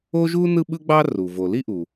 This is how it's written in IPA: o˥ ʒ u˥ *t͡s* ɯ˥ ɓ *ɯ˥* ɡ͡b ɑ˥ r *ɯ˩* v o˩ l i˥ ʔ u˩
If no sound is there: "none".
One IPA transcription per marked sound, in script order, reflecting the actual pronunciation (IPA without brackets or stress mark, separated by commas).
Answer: n, ɯ˥, u˩